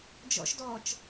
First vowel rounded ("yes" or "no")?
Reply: yes